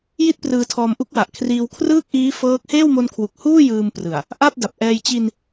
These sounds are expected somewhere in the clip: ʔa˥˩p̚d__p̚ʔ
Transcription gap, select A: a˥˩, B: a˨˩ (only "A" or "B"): B